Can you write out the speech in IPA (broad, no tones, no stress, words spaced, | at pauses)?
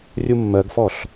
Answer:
rʲumːɜɡfɔɬ